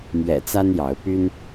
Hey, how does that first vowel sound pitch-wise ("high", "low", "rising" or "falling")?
low